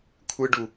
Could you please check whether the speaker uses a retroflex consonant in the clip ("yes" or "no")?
yes